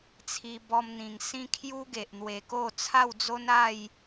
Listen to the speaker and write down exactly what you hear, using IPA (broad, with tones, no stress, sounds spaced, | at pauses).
t͡sʰ i˧ b ɔ˧ m n̪ ĩ˨˩ ŋ s ĩ˦ kʰ j u˦ ɡ e˨ ʔ n̪ w e˨˩ k o˥˧ t͡sʰ a˥˧ w d͡z o˦ n a˥˧ j